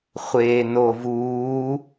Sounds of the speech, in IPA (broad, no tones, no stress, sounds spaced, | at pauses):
χʷ eː n o v uː